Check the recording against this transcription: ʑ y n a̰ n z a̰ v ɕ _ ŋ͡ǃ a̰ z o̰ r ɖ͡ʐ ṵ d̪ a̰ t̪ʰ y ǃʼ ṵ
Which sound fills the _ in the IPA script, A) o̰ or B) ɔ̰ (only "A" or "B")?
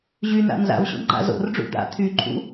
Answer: A